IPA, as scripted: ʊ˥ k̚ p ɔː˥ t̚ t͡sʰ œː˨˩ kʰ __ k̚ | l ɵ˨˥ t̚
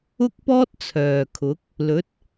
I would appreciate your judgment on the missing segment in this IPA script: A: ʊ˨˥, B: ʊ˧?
A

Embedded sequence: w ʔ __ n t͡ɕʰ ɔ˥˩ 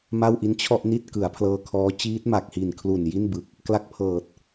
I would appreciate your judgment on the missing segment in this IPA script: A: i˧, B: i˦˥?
B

